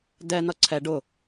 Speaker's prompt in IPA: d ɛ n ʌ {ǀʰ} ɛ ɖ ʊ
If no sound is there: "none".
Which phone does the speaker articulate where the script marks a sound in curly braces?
ǀʰ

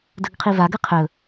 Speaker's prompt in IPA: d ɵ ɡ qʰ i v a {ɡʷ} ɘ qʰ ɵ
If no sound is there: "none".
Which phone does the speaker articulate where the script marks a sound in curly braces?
ɡ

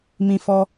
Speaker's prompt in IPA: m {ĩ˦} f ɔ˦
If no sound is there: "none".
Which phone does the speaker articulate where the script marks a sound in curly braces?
ĩ˦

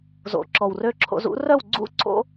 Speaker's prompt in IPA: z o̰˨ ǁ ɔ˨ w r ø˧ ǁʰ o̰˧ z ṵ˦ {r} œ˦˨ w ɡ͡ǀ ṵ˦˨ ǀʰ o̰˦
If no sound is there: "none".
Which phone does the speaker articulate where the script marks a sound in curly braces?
r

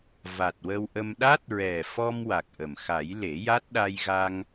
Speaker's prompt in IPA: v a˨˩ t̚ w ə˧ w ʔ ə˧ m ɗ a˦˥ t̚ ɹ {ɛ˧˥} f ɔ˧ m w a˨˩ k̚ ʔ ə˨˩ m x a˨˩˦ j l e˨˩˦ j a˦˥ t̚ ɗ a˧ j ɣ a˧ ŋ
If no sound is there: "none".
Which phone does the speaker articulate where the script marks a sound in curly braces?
ɛ˨˩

